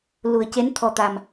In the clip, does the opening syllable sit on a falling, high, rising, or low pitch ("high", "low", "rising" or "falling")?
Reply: low